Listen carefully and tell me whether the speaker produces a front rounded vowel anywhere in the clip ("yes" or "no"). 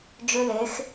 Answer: yes